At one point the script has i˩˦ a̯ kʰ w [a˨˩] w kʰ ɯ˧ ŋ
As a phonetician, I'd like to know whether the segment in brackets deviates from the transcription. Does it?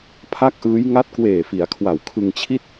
no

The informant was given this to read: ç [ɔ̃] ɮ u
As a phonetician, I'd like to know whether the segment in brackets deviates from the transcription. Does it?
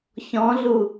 no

